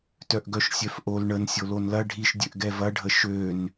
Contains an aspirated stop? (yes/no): no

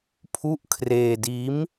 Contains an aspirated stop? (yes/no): yes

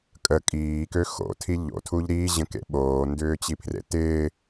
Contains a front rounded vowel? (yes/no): yes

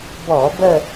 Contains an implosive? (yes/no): no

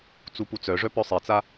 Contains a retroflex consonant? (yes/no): yes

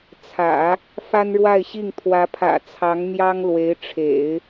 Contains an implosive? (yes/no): no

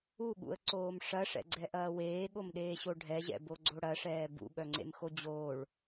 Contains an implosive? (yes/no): yes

